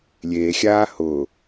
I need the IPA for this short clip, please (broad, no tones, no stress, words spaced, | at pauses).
lʲeːxʲaː hʊː